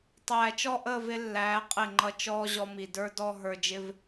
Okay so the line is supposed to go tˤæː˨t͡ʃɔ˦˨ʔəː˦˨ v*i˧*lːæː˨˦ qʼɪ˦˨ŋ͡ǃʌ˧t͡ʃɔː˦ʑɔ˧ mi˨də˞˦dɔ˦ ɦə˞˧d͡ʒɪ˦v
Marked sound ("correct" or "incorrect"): incorrect